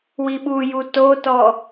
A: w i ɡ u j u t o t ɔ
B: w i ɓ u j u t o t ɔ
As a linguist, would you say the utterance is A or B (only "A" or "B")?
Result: B